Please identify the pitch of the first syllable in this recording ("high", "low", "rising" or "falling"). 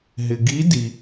low